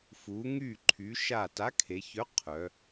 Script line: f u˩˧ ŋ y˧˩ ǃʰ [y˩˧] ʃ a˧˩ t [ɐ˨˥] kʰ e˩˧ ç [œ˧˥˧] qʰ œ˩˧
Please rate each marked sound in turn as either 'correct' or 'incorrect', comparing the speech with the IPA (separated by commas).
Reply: correct, incorrect, incorrect